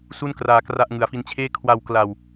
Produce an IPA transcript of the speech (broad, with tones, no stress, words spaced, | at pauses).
su˥˩n kraː˧kra˥˩ʔ ŋɯ˨˩a̯fi˧nt͡ɕʰeː˥˩ kʰwa˧wkla˧w